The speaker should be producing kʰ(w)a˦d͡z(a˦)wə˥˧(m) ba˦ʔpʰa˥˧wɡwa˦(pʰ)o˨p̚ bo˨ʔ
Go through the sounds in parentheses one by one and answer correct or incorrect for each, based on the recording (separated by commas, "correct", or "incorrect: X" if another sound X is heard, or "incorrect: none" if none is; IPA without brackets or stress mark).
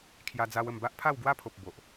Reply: incorrect: j, correct, correct, correct